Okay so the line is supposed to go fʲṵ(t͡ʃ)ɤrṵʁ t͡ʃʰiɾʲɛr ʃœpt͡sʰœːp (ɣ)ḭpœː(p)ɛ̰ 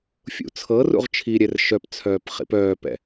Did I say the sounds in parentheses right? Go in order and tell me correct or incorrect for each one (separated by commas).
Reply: incorrect, incorrect, correct